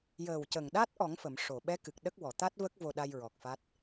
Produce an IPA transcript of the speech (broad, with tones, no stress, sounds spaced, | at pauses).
j əː˨˩ w c ə˨˩ ŋ ɗ a˦˥ t̚ ʔ ɔ˨˩˦ ŋ f ə˨˩˨ m ʂ o˨˩˨ ɓ ɛ˧˥ k ɨ˨˩ k̚ ɗ ə˦˥ k̚ w ɔ˨˩˨ t̪ a˦˥ t̚ v ə˦˥ k̚ v o˧ ɗ a˧ j ɹ ɔ˨˩ k̚ f a˦˥ t̚